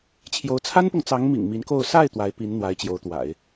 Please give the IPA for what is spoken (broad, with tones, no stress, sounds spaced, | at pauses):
t͡ɕʰ j o˧˥ ʊ̯ t͡sʰ a˥ n p ʊ˨ ŋ t͡s ɑ˧˥ ŋ m ḭ˨˩ ŋ m i˧˥ n k o˥˧ ʊ̯ s a˥˩ ɪ̯ t̪ w a˧˥ ɪ̯ p i˧˥ n n̪ w a˧˥ ɪ̯ t͡ɕ j o˧˥ ʊ̯ t̪ w a̰˨˩˦ ɪ̯